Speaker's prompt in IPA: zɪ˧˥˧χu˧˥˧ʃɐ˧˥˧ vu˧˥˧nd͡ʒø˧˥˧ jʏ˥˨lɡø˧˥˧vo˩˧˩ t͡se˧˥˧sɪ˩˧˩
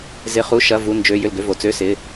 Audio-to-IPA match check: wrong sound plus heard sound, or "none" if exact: e˧˥˧ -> ø˧˥˧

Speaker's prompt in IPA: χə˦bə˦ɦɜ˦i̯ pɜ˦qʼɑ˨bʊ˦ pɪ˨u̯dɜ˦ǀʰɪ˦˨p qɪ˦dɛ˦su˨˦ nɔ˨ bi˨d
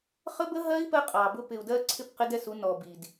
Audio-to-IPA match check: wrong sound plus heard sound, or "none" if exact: none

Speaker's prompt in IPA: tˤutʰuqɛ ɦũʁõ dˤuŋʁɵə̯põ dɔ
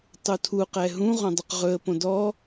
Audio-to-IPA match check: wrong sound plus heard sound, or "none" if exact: ŋ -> q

